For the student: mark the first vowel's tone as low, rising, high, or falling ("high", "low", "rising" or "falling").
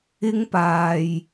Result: high